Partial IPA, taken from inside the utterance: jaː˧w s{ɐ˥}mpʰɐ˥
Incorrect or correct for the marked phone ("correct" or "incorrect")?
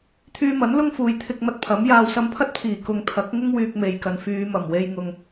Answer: incorrect